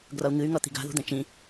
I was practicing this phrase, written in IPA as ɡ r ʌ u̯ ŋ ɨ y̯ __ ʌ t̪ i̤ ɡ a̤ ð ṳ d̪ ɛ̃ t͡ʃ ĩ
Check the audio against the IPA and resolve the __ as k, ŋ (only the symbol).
ŋ